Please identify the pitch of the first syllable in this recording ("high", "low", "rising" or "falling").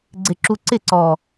low